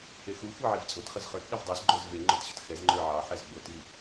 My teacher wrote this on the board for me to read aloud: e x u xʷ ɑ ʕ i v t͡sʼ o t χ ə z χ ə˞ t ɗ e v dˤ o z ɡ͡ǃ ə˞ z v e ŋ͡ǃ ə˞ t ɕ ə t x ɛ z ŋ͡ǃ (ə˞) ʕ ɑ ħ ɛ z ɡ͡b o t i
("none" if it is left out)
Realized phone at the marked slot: ə˞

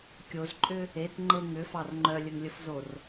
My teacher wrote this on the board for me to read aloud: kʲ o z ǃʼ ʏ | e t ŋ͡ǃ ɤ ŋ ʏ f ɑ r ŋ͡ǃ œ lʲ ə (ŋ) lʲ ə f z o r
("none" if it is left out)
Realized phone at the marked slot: ŋ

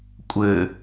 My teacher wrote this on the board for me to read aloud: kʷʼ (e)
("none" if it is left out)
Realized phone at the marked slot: ɘ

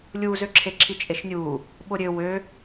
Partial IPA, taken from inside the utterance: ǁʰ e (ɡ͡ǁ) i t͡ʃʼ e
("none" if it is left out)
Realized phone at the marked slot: ǁʰ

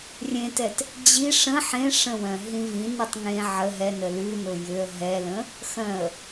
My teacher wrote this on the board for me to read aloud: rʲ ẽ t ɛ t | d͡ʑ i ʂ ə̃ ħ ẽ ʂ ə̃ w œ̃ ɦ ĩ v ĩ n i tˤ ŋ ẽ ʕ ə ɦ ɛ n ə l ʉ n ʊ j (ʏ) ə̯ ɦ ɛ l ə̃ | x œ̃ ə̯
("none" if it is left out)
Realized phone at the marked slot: ʏ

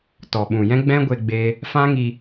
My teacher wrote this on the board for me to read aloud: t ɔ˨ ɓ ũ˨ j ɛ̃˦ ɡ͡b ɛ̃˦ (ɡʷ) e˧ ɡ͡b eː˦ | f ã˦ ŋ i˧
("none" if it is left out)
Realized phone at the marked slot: ɡʷ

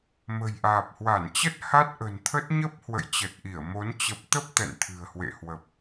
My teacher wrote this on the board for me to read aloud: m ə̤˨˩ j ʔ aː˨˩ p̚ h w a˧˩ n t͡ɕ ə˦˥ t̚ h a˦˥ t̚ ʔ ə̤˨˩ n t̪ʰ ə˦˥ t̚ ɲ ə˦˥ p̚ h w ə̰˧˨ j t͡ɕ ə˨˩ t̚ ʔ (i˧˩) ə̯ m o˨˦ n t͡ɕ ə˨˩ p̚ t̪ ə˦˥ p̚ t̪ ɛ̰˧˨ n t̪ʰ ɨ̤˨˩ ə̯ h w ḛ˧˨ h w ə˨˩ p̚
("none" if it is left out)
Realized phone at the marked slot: i˧˩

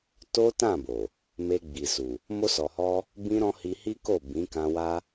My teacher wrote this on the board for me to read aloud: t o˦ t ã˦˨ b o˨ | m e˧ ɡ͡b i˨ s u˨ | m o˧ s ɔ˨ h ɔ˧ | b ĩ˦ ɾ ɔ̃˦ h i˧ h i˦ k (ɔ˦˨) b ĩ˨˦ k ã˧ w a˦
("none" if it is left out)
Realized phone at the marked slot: o˦˨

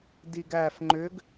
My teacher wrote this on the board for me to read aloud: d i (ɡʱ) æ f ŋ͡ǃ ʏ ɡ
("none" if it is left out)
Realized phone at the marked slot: ɡ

